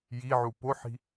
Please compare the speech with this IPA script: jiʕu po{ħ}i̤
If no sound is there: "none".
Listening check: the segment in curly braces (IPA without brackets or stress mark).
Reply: ħ